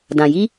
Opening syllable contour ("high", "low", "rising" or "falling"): low